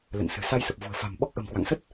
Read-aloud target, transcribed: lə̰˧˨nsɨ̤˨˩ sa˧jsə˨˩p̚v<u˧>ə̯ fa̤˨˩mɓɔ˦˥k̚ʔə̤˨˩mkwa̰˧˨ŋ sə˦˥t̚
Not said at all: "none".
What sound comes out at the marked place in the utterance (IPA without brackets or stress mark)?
ṳ˨˩